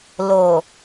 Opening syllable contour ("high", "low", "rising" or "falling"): low